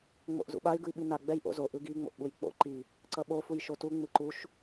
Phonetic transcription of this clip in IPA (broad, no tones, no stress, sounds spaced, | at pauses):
ŋ͡m o̰ ʔ z ṵ ɓ a y̯ ɡ ɯ i̯ ɓ i n a ɡ͡b ɛ j ʔ o̰ z o ʔ ɯ ɡ i ŋ͡m o̰ ʔ ɓ u j k͡p o̰ ǃ i | ǀ ʌ ɓ o f u j ʃ o t u ŋ͡m ɯ ǃ u ʃ